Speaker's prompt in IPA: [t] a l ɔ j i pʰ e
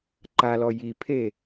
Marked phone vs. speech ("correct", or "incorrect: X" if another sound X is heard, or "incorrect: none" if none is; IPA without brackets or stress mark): incorrect: ǃ